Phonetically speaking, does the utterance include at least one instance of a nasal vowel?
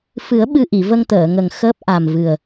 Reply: no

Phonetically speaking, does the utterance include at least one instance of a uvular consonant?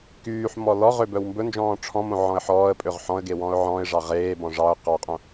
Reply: yes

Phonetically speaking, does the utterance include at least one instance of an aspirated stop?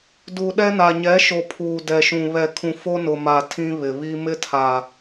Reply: yes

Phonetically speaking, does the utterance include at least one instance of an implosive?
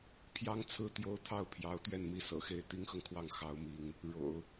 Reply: no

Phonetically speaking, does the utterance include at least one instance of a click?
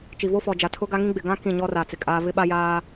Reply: no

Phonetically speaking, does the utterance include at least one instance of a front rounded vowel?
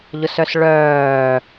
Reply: yes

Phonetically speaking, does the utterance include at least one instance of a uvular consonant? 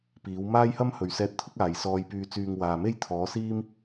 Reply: no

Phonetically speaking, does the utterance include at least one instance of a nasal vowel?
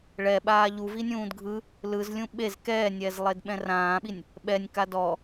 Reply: yes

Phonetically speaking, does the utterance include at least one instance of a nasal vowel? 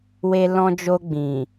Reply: yes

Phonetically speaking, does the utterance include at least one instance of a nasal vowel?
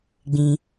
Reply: yes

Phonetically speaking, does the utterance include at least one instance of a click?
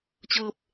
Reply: no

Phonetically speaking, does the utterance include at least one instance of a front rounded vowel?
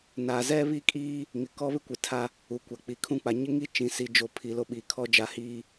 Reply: no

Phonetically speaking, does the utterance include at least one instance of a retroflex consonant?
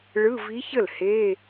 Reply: yes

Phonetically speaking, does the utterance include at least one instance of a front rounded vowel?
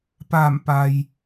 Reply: no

